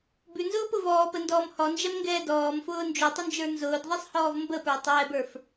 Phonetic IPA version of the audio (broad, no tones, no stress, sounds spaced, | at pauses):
b ʉ n z ʊː p ʊ v ɔː p ə n d ɔː m h ɔ n d͡ʒ ɛ m ŋ ɡ ɛː d ɔː m f ʊː n d͡ʒ ʉ tˤ ʊ n d͡ʒ ə˞ n z ʊː d ðˤ i sˤ h ɔː v m b ə p ə˞ tˤ ɛː b ə˞ f